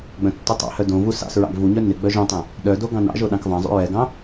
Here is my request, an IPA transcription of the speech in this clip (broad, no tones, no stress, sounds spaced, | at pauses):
ɡ͡b œ̃ tː u tˤ ɑ̰ h œ d õ v u s ɑ̰ s ɹ ɑ̰ ɡ v u ɲ œ n ɪ ɡ͡b œ ʒ õ tˤ ɛ̃ | ɗ œ d o ɡ ɑ̃ n ɑ̰ ʒ o ɗ ɑ̃ k v ɑ̃ zˤ ṵ ɹ ɛ ɡ ɑ̃